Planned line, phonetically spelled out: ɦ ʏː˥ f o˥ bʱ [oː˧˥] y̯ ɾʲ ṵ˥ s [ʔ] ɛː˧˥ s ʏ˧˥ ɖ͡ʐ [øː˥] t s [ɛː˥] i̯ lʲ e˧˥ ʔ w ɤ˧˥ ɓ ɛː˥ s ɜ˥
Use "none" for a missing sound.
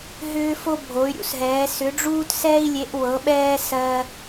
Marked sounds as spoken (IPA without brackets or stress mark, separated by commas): o˧˥, ɦ, uː˥, ɛː˥